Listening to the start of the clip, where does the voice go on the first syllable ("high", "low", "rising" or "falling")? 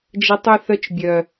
high